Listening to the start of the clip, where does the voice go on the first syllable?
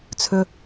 low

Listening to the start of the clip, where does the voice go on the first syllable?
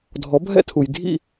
rising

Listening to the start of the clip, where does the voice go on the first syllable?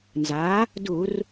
rising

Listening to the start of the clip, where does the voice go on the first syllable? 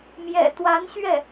low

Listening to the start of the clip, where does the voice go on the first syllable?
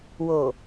low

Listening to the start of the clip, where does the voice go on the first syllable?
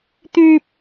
high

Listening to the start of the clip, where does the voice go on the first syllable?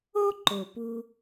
high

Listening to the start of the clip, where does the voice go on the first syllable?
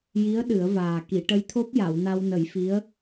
rising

